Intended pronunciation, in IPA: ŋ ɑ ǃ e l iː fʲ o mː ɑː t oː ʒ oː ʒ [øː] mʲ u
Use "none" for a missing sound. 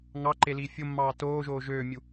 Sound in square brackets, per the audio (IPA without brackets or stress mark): øː